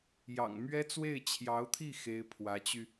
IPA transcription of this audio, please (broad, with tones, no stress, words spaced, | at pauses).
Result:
jɑ̰˨˩ŋmɥɛ˥ t͡swe˥˩ɪ̯t͡ɕʰjɑ˧˥ʊ̯t̪ʰi˥˩ xe˥ɪ̯pʰwä˧˥t͡ɕy˧